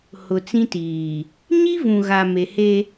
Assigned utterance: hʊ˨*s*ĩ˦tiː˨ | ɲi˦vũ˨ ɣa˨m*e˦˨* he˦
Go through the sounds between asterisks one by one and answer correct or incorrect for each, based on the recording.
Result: incorrect: t͡s, incorrect: e˨

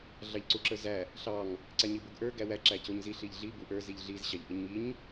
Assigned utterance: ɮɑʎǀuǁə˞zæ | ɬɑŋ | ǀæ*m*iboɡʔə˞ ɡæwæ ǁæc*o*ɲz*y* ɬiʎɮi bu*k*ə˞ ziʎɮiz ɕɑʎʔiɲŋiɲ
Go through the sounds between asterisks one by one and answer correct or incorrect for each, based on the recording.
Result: incorrect: ɲ, correct, incorrect: i, incorrect: ʔ

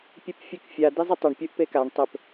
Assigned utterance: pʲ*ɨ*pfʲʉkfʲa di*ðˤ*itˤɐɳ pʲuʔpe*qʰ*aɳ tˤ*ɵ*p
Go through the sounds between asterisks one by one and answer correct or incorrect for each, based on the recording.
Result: correct, incorrect: zˤ, incorrect: k, correct

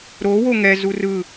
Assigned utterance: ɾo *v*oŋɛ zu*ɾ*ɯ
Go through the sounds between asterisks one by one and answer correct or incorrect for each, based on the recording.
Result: incorrect: w, incorrect: r

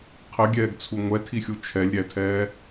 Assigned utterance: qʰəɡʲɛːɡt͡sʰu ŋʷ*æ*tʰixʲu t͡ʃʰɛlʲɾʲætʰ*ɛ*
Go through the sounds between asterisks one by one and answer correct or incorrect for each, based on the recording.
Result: incorrect: ɛ, incorrect: ɛː

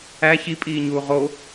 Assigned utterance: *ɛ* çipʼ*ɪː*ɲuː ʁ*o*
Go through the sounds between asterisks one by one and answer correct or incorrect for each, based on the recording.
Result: incorrect: æ, incorrect: iː, correct

